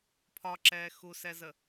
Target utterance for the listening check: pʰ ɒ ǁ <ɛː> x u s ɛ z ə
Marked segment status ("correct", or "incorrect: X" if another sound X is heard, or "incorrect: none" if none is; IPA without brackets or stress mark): correct